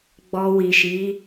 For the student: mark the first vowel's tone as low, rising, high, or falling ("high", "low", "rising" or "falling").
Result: low